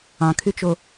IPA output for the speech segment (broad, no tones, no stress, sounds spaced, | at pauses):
ɑ̃ kʰ y t͡ʃ o